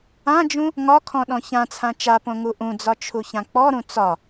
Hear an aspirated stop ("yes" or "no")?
yes